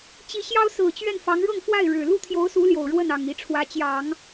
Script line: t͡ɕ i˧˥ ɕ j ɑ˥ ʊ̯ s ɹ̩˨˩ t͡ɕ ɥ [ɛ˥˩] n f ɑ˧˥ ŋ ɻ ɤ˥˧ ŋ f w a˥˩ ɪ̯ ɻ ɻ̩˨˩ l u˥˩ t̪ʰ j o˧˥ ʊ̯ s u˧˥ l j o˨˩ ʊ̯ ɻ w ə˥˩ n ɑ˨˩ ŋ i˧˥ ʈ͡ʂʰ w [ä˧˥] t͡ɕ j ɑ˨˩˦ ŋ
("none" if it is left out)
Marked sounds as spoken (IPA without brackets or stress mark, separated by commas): ɛ˥˩, ä˧˥